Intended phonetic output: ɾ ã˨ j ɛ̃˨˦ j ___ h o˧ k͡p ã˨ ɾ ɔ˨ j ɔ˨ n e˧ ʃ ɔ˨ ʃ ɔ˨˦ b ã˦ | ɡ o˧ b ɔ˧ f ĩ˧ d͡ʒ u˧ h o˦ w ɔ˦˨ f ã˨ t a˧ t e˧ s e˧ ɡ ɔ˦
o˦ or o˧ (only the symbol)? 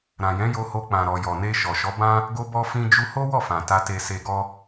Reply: o˧